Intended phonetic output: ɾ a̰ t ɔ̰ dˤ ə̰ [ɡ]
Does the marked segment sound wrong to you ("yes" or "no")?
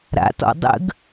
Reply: no